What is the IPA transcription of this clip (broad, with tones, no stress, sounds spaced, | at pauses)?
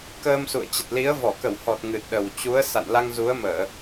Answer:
k əː˧ m s ṵ˧˨ ə̯ t͡ɕ ə˨˩ t̚ l i˨˦ ə̯ v ɔ˧˩ k ə˧˩ w h ɔ˨˩ t̚ ŋ ɨ˨˩ t̚ ɗ ə˨˩ w t͡ɕ u˨˦ ə̯ s a̰˧˨ n l a˧ ŋ z u˨˦ ə̯ m əː˧˩˨